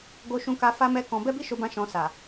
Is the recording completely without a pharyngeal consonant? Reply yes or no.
yes